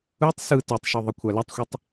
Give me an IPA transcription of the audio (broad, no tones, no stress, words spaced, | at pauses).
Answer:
ɯtˤ sɯ tytˤʃy ðˤɯkʷʰalɛtˤxʷɛtˤ